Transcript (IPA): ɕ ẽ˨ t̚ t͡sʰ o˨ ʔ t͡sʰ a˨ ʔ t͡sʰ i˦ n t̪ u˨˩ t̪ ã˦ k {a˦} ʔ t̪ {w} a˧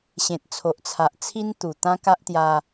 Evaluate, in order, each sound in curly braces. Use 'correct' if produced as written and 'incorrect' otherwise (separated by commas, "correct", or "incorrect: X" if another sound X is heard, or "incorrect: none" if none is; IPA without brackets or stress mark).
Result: correct, incorrect: j